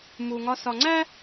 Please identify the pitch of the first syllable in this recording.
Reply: low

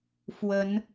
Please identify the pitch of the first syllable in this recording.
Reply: rising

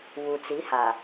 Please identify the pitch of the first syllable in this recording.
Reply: low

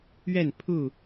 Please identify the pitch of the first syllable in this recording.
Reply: falling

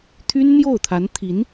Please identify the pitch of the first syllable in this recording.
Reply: high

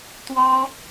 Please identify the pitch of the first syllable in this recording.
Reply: high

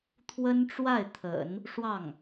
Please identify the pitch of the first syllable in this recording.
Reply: high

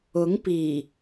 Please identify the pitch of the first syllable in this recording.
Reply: rising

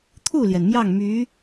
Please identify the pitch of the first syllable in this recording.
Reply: falling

